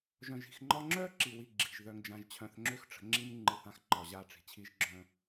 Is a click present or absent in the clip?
present